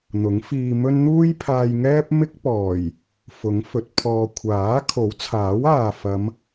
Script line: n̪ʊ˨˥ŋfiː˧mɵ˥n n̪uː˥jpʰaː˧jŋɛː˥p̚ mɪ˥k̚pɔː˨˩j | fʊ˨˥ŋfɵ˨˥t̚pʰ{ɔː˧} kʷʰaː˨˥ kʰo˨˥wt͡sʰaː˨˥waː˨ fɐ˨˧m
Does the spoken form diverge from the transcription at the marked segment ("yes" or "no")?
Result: no